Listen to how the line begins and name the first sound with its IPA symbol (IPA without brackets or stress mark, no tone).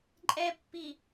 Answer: ǃʼ